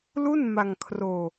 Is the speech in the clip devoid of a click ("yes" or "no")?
yes